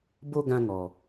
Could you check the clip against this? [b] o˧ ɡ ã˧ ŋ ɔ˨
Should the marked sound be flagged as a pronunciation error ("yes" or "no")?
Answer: no